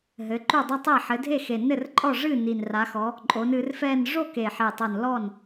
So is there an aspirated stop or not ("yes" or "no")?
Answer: no